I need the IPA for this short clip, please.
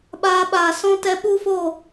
ɓ aː˧ ɓ aː˨ s ɔ̃˧ t ɛ˧ ɓ u˦ f oː˦˨

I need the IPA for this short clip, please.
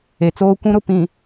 e˨ t͡s oː˦ kʷ ũ˦ ɾ ʊ˨ p ĩ˨

